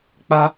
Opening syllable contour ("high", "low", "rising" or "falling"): high